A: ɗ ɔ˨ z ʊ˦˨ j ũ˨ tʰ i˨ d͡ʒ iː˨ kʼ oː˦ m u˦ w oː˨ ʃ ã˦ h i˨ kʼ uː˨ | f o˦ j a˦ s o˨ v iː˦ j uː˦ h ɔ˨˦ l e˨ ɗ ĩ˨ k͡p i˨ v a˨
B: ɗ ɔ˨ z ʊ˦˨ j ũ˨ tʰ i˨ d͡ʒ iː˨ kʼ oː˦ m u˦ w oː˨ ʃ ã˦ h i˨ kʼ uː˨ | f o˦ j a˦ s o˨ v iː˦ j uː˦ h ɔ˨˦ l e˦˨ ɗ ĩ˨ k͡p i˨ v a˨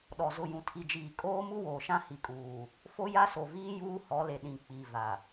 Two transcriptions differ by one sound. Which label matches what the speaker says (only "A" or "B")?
A